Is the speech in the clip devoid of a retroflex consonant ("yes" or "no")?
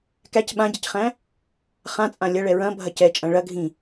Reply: no